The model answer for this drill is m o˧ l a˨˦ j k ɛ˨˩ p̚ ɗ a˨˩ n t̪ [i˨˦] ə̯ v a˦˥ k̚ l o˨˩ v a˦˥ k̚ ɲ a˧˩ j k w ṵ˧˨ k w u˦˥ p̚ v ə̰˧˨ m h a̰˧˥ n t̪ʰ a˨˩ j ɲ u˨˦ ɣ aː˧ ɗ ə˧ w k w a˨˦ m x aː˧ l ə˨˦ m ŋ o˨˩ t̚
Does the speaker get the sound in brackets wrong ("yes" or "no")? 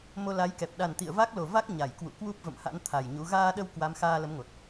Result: yes